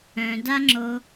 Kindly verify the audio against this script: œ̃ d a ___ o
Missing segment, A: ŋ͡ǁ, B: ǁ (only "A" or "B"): A